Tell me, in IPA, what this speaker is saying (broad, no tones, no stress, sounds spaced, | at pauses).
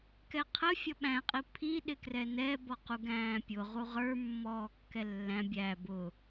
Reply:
k ɛ qʰ ə fʲ ʌ ɓ æ̃ qʼ i pʰ i ɗ ɪ k r ɛ n ɛ b ɔ q u ɡ æ̃ː pʲ ʊ ʁ u ʁ ə˞ mː ɔː kː ɛ lː æ̃ bʲ æ b ʊ